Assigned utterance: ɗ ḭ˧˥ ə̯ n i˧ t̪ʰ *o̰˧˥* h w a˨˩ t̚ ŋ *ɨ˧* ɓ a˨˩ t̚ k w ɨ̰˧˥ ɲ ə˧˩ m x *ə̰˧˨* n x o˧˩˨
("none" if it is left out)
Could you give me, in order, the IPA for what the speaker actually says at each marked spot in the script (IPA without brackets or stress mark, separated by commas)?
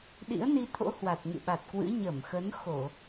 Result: o̰˧˥, ɨ̰˧˨, ə˨˦